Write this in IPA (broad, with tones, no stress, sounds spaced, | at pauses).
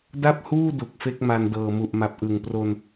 d a˥˩ p̚ h uː˥˩ d u˨˩ k̚ f e˦˥ k̚ m a˧ n d ɤː˨˩ m u˨˩ ʔ m a˨˩ p̚ ʔ ɯ˨˩ ŋ p r o˧ n